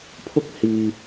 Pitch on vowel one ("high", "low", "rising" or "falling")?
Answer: high